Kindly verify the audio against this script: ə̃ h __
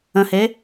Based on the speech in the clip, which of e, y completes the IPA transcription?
e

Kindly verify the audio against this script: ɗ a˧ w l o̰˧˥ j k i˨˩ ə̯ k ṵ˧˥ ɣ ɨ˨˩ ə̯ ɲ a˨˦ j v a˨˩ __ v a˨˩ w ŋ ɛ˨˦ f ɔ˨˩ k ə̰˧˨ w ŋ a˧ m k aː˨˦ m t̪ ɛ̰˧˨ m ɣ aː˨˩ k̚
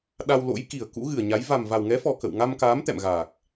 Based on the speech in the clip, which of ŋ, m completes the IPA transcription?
m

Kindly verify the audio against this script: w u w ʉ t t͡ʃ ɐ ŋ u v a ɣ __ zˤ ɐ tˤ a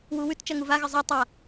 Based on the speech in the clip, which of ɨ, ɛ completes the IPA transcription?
ɨ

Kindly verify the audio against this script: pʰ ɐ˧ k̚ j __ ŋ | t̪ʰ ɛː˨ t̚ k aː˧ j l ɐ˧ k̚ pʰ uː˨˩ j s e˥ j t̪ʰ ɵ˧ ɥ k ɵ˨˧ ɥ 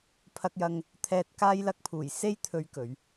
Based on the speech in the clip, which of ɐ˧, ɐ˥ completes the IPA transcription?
ɐ˧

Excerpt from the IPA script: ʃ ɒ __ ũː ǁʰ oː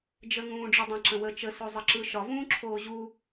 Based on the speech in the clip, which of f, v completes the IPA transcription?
v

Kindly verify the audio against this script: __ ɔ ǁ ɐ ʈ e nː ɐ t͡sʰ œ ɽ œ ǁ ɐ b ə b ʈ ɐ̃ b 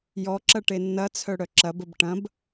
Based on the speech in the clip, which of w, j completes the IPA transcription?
j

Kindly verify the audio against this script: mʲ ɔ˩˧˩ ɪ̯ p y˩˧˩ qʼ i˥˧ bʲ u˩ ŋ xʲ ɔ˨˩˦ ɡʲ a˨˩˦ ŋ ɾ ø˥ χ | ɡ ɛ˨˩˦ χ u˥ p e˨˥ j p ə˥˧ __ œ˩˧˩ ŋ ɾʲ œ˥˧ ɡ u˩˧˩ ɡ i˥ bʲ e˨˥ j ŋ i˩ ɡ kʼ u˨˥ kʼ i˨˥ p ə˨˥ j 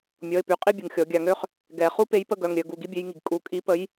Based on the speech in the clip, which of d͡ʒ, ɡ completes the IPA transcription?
ɡ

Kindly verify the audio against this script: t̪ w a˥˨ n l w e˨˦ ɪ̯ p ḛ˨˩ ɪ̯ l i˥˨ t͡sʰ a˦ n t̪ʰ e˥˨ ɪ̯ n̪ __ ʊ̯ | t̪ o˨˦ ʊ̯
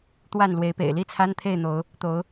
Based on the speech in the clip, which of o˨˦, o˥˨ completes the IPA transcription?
o˨˦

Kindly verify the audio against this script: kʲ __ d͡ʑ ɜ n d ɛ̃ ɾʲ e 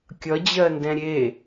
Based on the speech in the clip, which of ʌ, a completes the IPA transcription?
ʌ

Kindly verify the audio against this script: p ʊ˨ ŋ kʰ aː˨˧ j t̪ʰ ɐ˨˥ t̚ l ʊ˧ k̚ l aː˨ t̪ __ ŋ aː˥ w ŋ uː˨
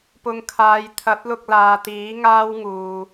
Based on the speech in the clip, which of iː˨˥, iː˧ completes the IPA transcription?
iː˨˥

